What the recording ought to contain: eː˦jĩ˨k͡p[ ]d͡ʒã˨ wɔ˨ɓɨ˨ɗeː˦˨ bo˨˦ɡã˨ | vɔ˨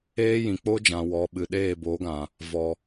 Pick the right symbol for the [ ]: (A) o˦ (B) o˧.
A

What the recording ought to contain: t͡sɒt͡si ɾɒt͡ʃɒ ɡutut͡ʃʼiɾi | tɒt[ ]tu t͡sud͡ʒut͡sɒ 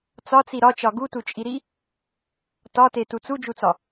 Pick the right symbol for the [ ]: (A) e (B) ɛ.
A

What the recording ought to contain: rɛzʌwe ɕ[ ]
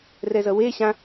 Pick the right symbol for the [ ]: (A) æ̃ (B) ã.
B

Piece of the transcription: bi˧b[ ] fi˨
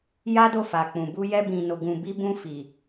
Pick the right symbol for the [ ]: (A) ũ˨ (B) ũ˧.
B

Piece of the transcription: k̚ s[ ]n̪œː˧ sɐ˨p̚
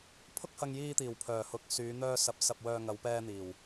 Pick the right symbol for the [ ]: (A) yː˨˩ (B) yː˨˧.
B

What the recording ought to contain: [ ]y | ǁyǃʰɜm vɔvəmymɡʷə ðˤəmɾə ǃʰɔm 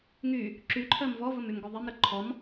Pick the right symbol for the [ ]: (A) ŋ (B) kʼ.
A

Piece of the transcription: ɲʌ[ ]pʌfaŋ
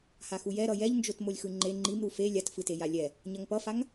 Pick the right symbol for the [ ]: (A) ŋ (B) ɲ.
A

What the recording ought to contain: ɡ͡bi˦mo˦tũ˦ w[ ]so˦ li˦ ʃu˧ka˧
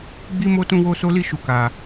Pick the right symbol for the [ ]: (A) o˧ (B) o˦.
B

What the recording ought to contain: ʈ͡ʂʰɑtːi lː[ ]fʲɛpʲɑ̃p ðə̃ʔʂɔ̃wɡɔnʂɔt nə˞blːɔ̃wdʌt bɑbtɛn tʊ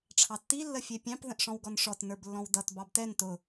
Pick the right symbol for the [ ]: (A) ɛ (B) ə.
B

